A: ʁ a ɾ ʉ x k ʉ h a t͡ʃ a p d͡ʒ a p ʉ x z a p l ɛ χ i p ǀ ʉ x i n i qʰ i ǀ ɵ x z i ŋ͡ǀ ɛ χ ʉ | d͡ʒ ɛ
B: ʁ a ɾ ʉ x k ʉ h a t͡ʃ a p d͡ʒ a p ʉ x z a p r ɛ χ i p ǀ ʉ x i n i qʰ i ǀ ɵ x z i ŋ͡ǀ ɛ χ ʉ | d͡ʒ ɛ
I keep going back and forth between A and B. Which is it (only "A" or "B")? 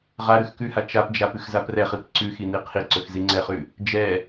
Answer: B